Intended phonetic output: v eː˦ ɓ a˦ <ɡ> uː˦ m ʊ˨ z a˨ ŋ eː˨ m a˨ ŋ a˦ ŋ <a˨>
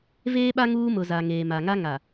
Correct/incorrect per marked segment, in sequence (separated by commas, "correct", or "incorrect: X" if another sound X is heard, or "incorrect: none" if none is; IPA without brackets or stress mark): incorrect: ŋ, correct